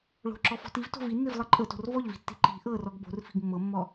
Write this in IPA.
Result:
ɭ o̤ ǁ ɔ f ɔ̤ t i v t o̤ v i nː i v lˠ ɤ ǃʼ ɤ t o̤ r v ɔ ʎ v i̤ tː i̤ ǃ i̤ ʔ ɤ r ɔ ɡ b o̤ r f i̤ ɡ mː ɤ mː ɔ

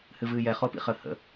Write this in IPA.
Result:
h ɨ v ɨː j ɛ χ o p ḭ χ ə h ə̰

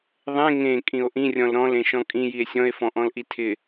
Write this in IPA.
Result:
ðˤ ẽ ŋ ẽ kʼ ĩ o̯ ʔ ĩ rʲ ɔ̃ l ɾ ɔ̃ l ẽ ʃ ɔ̃ kʼ ĩ j i e̯ sʲ ɔ̃ e̯ f ɔ̃ ʔ ɔ̃ l ʔ i tʰ ɪ

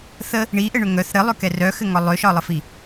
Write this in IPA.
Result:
θ ə | ɳ i ʔ ɘ ɳ ʏ ŋ œ θ ɾ ɘ lˠ ʏ k ɛ r œ x ɘ ŋ ɒ lˠ ʏ ʃ ɒ lˠ ə f i

